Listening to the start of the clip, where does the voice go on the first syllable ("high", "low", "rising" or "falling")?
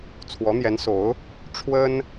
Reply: rising